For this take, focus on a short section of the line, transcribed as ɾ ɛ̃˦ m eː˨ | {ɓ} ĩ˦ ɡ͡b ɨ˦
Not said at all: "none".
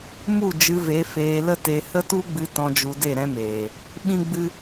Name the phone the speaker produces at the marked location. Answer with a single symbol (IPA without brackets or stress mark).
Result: ɓ